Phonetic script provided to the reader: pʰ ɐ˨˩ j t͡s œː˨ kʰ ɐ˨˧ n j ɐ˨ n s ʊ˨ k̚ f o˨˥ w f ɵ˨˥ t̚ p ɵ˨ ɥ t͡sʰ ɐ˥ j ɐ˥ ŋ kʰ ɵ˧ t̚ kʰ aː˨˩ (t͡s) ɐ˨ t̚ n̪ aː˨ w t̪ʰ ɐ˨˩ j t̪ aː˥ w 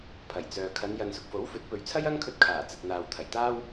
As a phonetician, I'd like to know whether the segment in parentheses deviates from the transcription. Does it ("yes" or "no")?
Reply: no